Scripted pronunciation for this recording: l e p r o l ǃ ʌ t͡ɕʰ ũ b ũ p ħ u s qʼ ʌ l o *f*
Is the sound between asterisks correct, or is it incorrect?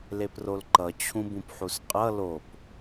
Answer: incorrect